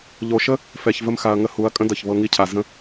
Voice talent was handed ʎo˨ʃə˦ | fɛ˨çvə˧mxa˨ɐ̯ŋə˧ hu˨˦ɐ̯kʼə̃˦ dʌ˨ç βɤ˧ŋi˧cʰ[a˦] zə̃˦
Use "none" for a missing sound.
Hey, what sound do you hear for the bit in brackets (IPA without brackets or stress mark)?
a˨